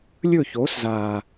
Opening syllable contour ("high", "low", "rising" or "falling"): falling